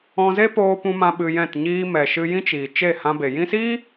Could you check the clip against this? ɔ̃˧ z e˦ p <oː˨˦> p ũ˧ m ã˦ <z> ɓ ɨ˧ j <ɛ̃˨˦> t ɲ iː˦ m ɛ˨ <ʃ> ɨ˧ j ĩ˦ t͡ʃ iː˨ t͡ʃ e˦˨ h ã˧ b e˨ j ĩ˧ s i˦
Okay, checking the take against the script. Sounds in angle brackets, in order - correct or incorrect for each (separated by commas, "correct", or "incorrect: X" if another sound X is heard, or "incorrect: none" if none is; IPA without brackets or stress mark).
incorrect: oː˧, incorrect: none, incorrect: ɛ̃˦˨, correct